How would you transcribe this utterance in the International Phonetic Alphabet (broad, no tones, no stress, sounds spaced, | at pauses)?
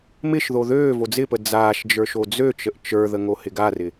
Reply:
m ɪ ʃ ð o ð øː v o d͡z ɪ p ə d͡z aː ʃ d͡ʒ ə˞ ʃ o d͡z ø t͡ʃ ə ʔ t͡ʃ ə˞ ð ə ŋ o h ɪ ɡ a r ɪ